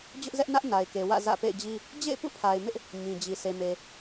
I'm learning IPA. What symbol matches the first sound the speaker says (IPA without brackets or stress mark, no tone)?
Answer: d͡ʑ